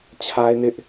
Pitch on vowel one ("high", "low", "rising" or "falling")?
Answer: high